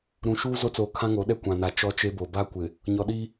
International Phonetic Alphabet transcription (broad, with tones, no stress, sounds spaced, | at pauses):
ɾ ũ˨ ʃ uː˦ z o˦ t͡s oː˨ kʰ ã˦ ŋ o˨˦ ɗ ɛ˦ kʷ ã˨ n a˨ t͡ʃ ɔ˦ t͡ʃ e˦ b o˨ b a˦ kʷ ɪ˨ | ɲ ɔ˨ ɗ i˦